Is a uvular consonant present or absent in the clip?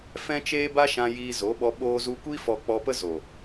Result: absent